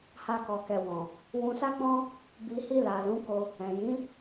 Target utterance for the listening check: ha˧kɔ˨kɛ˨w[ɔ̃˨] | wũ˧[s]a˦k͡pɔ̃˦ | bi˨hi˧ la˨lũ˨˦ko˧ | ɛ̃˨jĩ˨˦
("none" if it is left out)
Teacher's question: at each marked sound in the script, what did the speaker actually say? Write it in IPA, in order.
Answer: ɔ̃˨, s

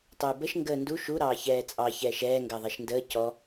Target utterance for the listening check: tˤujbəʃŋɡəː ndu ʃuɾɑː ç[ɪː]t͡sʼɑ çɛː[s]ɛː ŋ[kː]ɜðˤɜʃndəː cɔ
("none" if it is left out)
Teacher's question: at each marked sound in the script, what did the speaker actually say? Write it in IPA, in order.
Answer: ɛː, ʃ, ɡ

